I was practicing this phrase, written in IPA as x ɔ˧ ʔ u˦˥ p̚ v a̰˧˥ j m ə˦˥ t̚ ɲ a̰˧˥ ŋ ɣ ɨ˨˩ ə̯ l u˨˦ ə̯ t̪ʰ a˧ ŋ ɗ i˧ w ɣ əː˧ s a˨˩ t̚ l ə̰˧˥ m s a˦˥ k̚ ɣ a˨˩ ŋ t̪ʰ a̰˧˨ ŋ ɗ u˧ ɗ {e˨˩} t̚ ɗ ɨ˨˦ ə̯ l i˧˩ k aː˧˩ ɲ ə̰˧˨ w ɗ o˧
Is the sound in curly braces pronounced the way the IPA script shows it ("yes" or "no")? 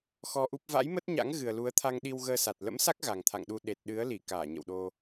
yes